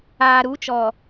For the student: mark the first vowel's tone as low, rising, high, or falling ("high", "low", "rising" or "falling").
low